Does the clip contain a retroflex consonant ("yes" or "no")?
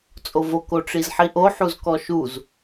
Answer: yes